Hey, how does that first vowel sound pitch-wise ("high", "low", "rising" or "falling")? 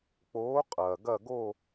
rising